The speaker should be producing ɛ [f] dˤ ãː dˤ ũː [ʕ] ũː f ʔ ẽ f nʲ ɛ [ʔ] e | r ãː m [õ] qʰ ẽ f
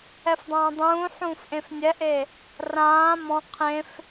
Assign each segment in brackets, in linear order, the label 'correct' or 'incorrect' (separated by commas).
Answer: correct, incorrect, correct, incorrect